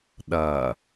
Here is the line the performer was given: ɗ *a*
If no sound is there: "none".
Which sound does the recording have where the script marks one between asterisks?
ɐ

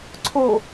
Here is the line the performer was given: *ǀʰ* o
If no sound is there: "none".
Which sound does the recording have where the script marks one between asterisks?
ǀʰ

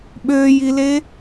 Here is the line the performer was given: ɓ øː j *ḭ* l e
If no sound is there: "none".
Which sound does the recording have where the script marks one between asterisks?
i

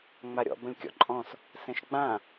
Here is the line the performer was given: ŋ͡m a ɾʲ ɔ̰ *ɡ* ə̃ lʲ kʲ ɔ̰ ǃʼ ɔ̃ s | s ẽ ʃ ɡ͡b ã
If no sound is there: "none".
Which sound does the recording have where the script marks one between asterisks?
b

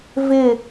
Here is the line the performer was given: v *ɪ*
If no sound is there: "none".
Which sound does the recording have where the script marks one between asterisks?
ɪ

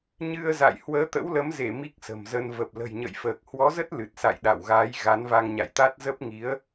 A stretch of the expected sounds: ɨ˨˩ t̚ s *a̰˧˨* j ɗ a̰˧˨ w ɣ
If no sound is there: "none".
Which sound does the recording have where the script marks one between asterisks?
a̰˧˨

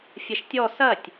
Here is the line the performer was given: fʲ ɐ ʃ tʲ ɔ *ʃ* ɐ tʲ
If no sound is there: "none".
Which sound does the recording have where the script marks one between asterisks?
s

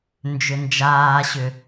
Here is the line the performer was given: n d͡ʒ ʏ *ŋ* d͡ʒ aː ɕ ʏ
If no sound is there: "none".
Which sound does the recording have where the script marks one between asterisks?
n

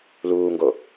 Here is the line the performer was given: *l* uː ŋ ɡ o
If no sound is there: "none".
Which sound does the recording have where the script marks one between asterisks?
l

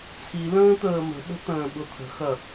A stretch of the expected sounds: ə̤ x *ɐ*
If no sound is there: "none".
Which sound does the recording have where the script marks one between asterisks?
ɐ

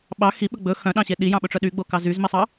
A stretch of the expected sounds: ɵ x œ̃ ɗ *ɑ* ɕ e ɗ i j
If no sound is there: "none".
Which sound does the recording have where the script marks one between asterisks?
ɑ̃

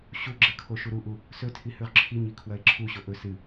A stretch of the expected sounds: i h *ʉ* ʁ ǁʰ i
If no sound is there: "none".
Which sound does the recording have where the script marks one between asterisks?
ʉ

